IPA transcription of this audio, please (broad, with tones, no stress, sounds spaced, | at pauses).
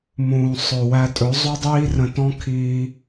m ũː˨ sˤ ɵ˨ w æ˧ tʼ ɵ˨˦ zˤ u˦ dˤ iː˦ r ə̃˧ t ɔ̃˦ kʰ iː˧